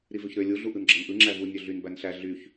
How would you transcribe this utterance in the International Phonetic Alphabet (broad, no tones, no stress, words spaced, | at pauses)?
ɾivøçɾø lʲu ɮuʔɯnɡ͡ǁɑnʔɯ ŋ͡ǁævu nʲøɮyn bænɬæ ɮyç